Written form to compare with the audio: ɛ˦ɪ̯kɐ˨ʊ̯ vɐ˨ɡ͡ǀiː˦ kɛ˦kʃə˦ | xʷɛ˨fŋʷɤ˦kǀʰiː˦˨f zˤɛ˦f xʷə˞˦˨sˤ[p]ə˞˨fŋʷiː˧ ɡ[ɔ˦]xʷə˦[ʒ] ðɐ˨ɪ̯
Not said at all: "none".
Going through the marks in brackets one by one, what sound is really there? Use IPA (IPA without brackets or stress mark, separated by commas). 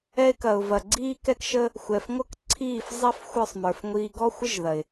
m, ɔ˦, ʒ